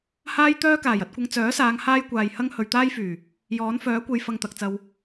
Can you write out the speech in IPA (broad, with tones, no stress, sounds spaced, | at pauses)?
h aː˥ j t̪ œː˥ k aː˨˩ j ɐ˧ t̚ kʷ ɐ˧ ŋ t͡s œː˨˥ s aː˨˧ ŋ h aː˥ j kʷ aː˨ j h ɐ˥ ŋ h ɵ˨ ɥ t̪ aː˥ j f yː˨˩ | j ɔː˨˥ n f œː˨˥ kʷ e˨ j f ɐ˧ ŋ t̪ ɐ˨ k̚ t͡s ɐ˧ w